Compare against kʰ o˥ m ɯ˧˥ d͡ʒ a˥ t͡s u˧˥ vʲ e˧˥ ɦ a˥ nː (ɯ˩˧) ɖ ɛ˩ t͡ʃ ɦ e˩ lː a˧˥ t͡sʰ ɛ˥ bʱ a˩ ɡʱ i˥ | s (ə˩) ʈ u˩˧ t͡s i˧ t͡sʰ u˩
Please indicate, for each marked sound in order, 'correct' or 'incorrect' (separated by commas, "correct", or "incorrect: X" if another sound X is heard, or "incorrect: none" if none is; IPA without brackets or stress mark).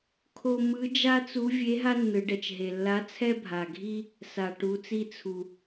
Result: correct, incorrect: a˩